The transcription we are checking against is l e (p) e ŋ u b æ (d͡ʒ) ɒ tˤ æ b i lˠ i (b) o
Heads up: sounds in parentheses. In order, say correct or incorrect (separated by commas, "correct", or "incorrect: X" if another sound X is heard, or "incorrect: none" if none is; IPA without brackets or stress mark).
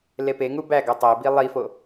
correct, incorrect: ɡ, incorrect: f